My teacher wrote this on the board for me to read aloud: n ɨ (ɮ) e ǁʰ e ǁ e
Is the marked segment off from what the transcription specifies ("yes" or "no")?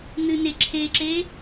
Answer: yes